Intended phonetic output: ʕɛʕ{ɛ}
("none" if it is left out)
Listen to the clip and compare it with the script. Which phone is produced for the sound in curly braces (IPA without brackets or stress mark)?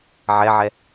ɛ